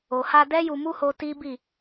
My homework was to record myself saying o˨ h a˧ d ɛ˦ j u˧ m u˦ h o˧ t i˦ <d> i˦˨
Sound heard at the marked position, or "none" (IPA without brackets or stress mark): b